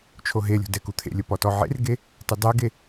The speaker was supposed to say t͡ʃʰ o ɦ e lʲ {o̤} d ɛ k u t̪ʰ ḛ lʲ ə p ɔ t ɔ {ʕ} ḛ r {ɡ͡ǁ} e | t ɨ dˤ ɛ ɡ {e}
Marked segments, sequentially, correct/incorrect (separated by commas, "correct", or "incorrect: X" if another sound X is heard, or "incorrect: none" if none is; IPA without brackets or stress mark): correct, correct, incorrect: ɡ, correct